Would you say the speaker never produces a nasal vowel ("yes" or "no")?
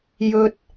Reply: yes